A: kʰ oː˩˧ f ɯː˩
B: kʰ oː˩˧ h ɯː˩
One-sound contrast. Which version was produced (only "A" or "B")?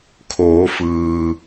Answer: A